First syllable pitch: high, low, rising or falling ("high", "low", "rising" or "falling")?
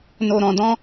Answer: low